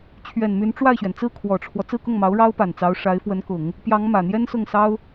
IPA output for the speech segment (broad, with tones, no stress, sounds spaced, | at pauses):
t͡ɕʰ ɥ ɛ˨˩ n m y˧˥ n ʈ͡ʂ w a˥˩ ɪ̯ ɕ ɥ ɛ˩ n t͡s ɹ̩˥˩ kʰ w ɔ˨˩ ʈ͡ʂʰ w ɔ˦ t͡s ɹ̩˥˧ k ʊ˥˩ ŋ m ɑ˧˥ ʊ̯ ɻ ɑ˥ ʊ̯ p a˨˩ n t͡s ɑ˧˥ ʊ̯ ʂ a˧˥ ɪ̯ f w ə˧˥ n k ʊ˨˩˦ ŋ | p j ɑ˧˥ ŋ m ä˨˩ n̪ j ɛ˥ n s ʊ˥˩ ŋ s ɑ˥ ʊ̯